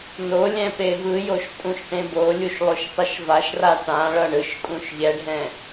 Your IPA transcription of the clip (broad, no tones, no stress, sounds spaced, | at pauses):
n o lʲ ɛ̃ p e v ɯ j o ʃ tʼ ũ ʃ ʈ ẽ b o lʲ u ʃ lˠ o ʃ tˤ ɛ ʃ v a ʃ r a ʈ ã ɭ ʌ ɳ ɯ ʃ kʼ ũ ʃ ʎ ɛ ɖʱ ɛ̃